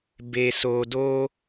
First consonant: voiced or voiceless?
voiced